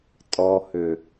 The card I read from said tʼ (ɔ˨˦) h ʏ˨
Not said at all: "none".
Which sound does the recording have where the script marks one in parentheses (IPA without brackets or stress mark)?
ɔ˨